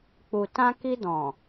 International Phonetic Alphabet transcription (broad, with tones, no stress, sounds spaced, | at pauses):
k͡p u˨ t ã˧ k i˧ d ɔ̃˨